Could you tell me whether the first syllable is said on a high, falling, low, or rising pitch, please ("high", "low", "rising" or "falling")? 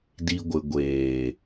low